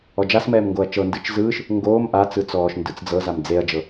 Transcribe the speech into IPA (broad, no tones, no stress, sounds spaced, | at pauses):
ɔ d͡ʒ a s m ɛː m ŋ ɡ o ɐ̯ t͡ʃ ɤ n d ɯ t͡ʃ z ɯː ʃ | ŋ ɡ oː m ʔ a t͡s ɯ t͡s ɔː ʃ n d ɯ t͡s d͡z ɤ z a m d͡z e ɐ̯ d͡ʒ ɤ